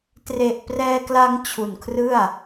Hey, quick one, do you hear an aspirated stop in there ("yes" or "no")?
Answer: yes